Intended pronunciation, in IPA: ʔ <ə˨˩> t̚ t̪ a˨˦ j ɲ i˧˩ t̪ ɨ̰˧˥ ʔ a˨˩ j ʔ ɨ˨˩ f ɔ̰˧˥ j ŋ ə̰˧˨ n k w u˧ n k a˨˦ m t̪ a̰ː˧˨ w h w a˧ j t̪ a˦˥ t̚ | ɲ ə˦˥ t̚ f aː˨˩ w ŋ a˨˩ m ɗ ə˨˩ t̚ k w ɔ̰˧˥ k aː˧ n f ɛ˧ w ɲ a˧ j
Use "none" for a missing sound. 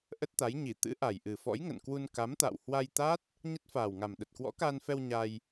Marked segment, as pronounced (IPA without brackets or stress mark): ə˦˥